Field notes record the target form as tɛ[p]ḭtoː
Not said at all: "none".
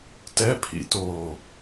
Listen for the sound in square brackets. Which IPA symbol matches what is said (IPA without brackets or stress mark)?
pʰ